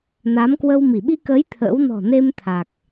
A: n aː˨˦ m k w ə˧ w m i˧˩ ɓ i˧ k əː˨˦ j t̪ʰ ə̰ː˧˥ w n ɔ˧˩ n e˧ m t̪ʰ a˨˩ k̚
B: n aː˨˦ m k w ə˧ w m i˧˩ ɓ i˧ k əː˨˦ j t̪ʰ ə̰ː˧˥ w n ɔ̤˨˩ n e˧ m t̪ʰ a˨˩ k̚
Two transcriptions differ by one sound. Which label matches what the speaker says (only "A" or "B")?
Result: B